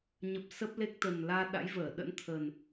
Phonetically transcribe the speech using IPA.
ɲə˨˩p̚sə˦˥p̚ le˦˥k̚ t̪ə˨˩nlaː˧ ɗa̰˧˥jvəː˧˩ ɗə̰˧˥nt̪ʰə˨˩n

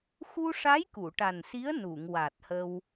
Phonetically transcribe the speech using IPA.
xu˧ʂa˧˥j ku˨˩˨ʈa˨˩nsi˧˥ə̯ nu˨˩˨ŋwa˨˩t̚hə˧w

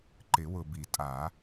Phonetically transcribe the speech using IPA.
ǃɪ˨˩˦wʊ˨bi˨˩˦tʼa˨˩˦

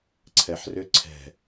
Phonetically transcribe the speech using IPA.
ǀʰɛħrʏ ǀʰɛ̤

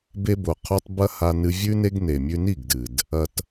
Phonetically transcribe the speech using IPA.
be˧bo˨qʰo˧tˤ bɐ˦ha˧ nɨ˧vʲʉ˦ne˦ɡ ne˨mʲʉ˧ni˦˨ɡdɨ˨d | ɐ˧t

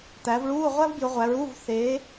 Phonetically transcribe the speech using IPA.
t̪æ˨˦vɭuː˧˥˧ ʁʷæ˥vbjɯ˨˦ʁʷæ˨˦ɹuː˧˥˧v θe˨˦

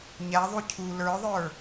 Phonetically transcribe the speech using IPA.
ɲæðˤu cʰu lə˞ðˤə˞

